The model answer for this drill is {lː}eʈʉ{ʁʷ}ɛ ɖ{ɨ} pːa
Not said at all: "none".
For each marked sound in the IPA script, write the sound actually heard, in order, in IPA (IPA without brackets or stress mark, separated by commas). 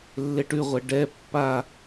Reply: lː, ʁʷ, ɛ